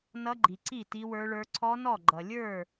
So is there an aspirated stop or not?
yes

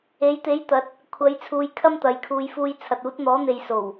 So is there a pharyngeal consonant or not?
no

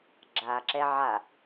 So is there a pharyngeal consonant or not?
yes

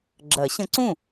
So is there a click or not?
yes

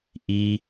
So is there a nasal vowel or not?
no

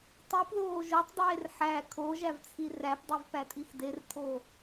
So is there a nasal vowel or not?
no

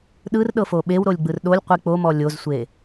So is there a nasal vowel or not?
no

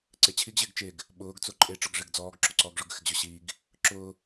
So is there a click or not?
yes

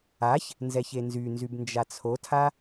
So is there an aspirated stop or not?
yes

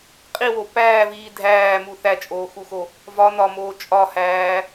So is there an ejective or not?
yes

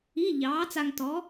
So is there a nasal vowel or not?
no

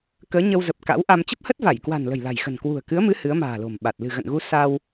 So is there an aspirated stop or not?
no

